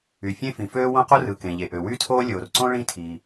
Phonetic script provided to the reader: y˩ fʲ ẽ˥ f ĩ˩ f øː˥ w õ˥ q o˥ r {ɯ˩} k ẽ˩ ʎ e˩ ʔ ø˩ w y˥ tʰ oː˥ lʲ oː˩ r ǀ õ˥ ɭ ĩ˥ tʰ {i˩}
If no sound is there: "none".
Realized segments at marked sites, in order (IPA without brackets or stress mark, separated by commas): ɯ˩, i˩